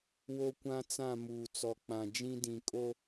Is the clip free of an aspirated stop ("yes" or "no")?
yes